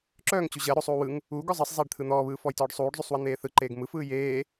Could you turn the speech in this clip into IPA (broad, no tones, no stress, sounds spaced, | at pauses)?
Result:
ǁ œː ŋ t͡ɕ u ʑ ɜ ɾ o sˤ uː w ɯ ŋ | uː ɡ ɔ zˤ ɜ sˤ zˤ eː ɖ t̪ʰ ɯ n̪ ɔː β ɯː f ɔ j t ɔː ɖ sˤ uː ɖ zˤ u sˤ w ɜ n̪ eː θ ɯ ǃ eː ɡ m ɯ f ɯː j eː